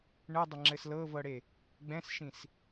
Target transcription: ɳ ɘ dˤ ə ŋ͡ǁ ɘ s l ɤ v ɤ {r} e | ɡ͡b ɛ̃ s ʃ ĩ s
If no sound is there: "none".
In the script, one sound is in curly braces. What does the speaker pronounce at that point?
ɽ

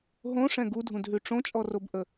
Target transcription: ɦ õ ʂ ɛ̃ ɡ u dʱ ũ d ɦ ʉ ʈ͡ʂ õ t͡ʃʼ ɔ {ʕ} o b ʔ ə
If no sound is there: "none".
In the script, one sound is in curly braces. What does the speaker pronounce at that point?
r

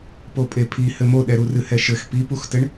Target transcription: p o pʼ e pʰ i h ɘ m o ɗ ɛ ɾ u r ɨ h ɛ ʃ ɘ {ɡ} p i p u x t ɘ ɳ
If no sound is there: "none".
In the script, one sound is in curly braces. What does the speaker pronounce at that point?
x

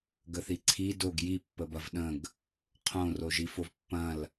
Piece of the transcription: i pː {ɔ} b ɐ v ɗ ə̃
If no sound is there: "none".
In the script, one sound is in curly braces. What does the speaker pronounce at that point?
ə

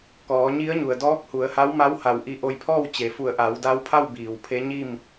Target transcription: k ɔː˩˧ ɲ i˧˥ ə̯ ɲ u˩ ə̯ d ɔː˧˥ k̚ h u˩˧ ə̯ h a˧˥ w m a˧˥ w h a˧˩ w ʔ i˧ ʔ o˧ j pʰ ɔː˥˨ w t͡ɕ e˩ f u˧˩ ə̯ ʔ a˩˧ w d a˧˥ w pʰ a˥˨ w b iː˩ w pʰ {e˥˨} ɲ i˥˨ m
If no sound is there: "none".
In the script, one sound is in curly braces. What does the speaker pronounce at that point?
e˧˥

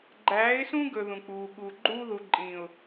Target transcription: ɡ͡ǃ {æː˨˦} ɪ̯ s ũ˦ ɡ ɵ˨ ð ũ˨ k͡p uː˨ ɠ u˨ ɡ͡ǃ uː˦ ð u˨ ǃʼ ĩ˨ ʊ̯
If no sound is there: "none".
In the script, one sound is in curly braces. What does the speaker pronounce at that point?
æː˨˦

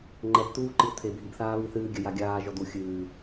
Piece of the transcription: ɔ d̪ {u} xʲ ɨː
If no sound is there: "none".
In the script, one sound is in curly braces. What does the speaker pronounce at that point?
u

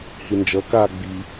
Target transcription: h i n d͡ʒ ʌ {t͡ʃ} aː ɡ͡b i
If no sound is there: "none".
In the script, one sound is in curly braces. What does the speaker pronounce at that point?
k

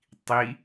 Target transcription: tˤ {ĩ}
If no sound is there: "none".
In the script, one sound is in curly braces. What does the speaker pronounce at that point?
i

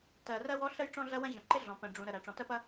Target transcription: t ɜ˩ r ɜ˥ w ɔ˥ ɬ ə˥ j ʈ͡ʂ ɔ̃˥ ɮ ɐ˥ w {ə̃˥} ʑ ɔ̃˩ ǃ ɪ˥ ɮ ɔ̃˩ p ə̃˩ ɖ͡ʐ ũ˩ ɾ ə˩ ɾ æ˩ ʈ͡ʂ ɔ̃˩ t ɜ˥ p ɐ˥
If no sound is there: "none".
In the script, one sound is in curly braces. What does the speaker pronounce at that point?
ɐ̃˥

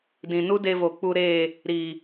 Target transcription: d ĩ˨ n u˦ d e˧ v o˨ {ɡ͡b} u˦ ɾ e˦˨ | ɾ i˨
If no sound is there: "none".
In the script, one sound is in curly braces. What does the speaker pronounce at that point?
k͡p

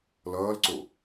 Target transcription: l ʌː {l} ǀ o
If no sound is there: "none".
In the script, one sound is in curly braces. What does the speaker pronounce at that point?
l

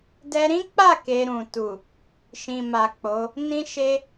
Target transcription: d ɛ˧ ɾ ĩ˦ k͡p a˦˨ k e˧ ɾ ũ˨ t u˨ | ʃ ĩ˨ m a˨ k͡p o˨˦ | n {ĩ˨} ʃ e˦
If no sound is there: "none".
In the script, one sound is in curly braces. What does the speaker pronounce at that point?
ĩ˦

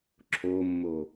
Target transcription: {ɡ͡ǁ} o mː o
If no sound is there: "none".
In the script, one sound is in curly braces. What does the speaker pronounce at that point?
ǁʰ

